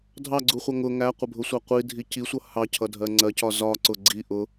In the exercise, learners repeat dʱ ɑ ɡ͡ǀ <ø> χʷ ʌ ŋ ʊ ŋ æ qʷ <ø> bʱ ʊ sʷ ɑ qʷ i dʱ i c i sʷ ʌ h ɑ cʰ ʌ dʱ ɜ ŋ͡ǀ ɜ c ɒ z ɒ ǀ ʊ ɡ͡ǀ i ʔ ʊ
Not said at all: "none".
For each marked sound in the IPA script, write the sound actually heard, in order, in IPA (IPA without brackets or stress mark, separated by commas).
u, ə